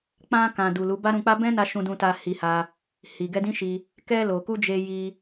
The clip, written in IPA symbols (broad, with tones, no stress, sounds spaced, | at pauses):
k͡p ã˧ k ã˨ d u˨ l u˨˦ b a˦ ɾ ũ˧ k͡p a˦ b ɛ̃˦ n a˧ ʃ ũ˧ d ũ˧ t a˧ h i˧ h a˧ | h i˨ ɡ ɛ˧ d ĩ˦ ʃ i˧ | k ɛ˧ l o˨ k u˧ d͡ʒ e˧ j i˧